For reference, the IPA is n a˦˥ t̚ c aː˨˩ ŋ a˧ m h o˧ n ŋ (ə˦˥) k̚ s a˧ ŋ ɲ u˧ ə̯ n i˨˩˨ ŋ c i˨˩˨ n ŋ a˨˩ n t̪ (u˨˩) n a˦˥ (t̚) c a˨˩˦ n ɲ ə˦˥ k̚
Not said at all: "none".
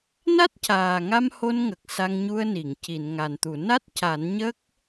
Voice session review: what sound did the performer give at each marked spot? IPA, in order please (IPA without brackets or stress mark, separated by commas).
ə˨˩, u˨˩˨, t̚